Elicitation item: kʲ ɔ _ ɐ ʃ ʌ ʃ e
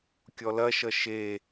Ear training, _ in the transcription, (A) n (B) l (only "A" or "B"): B